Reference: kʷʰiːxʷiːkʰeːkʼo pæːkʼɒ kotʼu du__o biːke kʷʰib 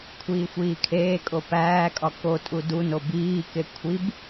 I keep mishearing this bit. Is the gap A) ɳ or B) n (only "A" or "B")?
B